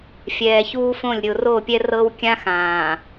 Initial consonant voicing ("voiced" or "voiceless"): voiceless